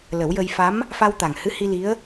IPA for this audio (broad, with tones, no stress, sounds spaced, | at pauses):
l ə˨˩˦ w j ə˧ j f a˧˥ m | f a˧ w t̪ a˨˩ ŋ h ɨ˧˥ h i˧ l i˧˥ ə̯